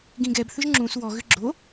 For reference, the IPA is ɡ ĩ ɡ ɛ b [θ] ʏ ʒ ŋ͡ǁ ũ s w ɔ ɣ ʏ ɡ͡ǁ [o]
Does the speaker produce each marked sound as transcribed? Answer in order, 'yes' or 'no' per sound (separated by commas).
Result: yes, yes